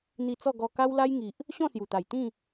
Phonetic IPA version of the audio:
n̪ i˧ t͡s ɔ˥˧ ɡ ɔ˧ k a˦ w l a˦ j ŋ i˨ ʔ | ɕ ɔ̃˥˧ s j u˨˩ t̪ a˨˩ j t̪ ĩ˥˧

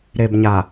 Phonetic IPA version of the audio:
ɾ e˨ b ɲ a˨

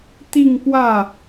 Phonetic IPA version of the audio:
t̪ i˥˧ ŋ p w ä˥˩

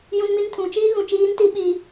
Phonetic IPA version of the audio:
j ũ˦ n m i˦ n tʰ ũ˨˦ t͡ʃ iː˦ ɣ ũ˨ t͡ʃ iː˦ n t i˦ ɓ i˦

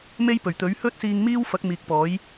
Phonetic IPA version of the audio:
m e˥ j p ɵ˨˩ ɥ t̪ ɵ˨˥ ɥ h ɵ˥ t̚ s iː˧ ŋ m iː˥ w f ɐ˨˥ k̚ m iː˨ k̚ p ɔː˨˥ j

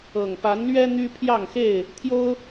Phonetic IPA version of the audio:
ɤ˨˩ ŋ p a˨˦ n l ɥ ɛ˦ n̪ y˦ pʰ j ɑ˥˨ ŋ x e˥˨ ɪ̯ | t̪ʰ j o˦ ʊ̯

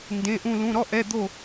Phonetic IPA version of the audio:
n d ẽ˧˥˧ ʔ ũ˥˧ l ũ˧˥˧ ɾ ɔ˥ ʔ ɛ˧˥˧ d̪ o˥˧

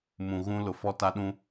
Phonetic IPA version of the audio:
m ũ˨ ɣ ũ˦ l ʊ˨ f ɔ˦ t a˦ ɗ ũ˦

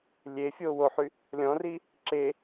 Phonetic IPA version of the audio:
lʲ e fʲ oː w o ħ y | lʲ ɔ̃ r i | ǁ e

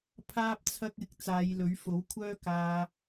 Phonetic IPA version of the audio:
pʰ aː˥ p̚ t͡sʰ ɐ˥ k̚ ɪ˧ k̚ t͡s aː˨˧ j l ɵ˨˥ ɥ f o˨˥ w kʷʰ œː˥ k aː˧

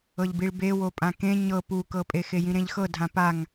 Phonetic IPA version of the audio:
ɤ ʎ b i ɭ b e w o pʼ ã k ẽ ɲ ɤ p u k ɤ pʼ e x e j ĩ ɾ ẽ ʎ x ɤ dʱ ã p a ŋ

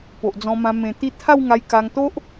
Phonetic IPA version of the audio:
p o˨ ʔ d͡z ɔ̃˧ m ã˧ m ẽ˧ t̪ i˦ t̪ʰ a˥˧ w ŋ a˧ j k a˧ ŋ t̪ o˦ ʔ

